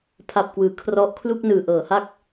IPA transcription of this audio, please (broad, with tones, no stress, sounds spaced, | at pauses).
pʰ a˨˩ p̚ k w ɯː˩˦ kʰ r ɔ˦˥ ʔ kʰ l u˥˩ k̚ n ɯː˨˩ ʔ ɤː˩˦ h a˥˩ k̚